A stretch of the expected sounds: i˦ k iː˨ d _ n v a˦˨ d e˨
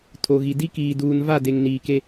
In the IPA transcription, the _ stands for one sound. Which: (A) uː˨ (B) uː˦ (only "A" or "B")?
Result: A